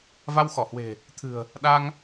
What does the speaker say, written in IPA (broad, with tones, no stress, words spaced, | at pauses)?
va˧wxɔ˧˩hwe̤˨˩ | t̪ʰɨ̤˨˩ə̯ | ɗa˧ŋ